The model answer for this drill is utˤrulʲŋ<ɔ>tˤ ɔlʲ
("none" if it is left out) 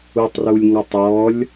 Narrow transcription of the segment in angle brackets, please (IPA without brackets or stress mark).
ɔ